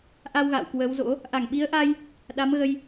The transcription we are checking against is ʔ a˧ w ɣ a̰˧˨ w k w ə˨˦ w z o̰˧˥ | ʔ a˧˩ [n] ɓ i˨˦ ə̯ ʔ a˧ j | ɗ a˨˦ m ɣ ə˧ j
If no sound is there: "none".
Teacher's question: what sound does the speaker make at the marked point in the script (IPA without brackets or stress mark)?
ŋ